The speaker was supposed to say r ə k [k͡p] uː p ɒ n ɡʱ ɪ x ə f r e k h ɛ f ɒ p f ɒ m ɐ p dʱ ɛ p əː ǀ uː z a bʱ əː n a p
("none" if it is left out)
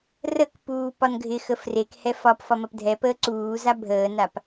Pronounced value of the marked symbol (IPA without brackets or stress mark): p